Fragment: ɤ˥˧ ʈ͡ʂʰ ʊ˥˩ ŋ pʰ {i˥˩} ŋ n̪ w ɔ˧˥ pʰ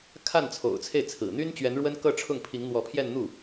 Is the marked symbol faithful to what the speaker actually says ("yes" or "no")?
no